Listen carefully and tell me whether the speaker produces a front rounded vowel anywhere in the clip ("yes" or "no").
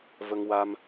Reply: no